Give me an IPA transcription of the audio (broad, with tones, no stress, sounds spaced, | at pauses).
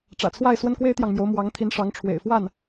ʈ͡ʂ ä̰˨˩ t͡sʰ w a˥˩ ɪ̯ s w ə˥ n k w e˥ ɪ̯ t̪ j ɑ˨ ŋ m j o˧˥ ʊ̯ m w ɑ˧˥ ŋ t̪ʰ i˧˥ n ʂ ɑ˧˥ ŋ ʈ͡ʂʰ w ḛ˨˩ ɪ̯ f w a˥˩ n